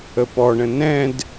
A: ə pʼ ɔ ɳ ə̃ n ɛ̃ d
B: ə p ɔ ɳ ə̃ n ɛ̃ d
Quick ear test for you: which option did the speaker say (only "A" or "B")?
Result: B